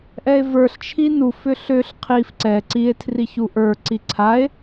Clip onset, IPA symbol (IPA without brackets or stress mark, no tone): ʔ